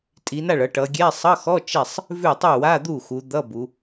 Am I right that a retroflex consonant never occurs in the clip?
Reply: no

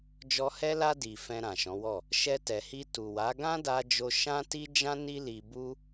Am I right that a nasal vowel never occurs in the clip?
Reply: no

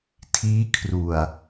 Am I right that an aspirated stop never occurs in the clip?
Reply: no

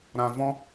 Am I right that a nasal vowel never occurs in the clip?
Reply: no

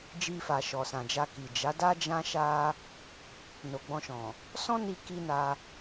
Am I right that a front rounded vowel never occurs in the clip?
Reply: yes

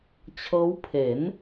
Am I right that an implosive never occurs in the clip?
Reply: yes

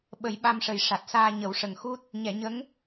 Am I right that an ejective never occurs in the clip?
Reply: yes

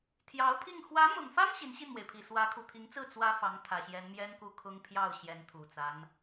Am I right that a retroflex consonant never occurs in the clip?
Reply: yes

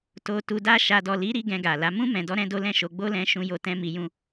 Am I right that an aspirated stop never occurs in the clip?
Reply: yes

